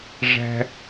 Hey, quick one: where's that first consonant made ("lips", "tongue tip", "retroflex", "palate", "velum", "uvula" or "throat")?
retroflex